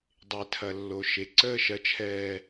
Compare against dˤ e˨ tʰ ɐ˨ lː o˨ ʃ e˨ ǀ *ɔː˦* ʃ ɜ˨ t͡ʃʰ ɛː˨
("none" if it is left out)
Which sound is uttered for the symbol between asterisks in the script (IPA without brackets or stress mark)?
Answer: əː˦